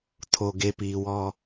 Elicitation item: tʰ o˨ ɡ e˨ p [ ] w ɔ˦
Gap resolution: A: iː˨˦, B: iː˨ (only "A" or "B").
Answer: B